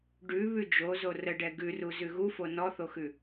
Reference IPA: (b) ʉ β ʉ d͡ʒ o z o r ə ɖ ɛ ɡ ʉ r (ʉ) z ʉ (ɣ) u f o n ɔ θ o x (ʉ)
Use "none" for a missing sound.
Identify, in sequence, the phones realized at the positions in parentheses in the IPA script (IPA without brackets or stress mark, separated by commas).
ɖ, u, ɣ, ʉ